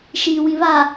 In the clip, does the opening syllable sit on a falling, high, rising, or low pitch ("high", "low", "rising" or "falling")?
low